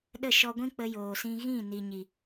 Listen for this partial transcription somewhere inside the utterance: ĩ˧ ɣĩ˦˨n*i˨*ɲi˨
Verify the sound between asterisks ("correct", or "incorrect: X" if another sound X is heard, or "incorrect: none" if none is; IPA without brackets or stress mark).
correct